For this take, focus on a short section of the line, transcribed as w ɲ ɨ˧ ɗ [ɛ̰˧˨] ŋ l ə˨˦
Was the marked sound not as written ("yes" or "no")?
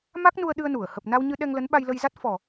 yes